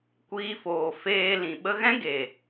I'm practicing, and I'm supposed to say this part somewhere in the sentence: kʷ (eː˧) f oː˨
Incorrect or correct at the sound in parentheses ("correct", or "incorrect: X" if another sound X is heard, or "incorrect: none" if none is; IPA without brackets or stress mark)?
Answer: incorrect: iː˧